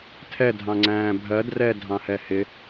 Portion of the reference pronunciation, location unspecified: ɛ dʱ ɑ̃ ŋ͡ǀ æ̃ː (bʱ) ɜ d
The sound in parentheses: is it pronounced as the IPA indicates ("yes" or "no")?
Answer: yes